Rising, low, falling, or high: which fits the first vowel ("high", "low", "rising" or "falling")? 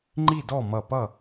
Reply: falling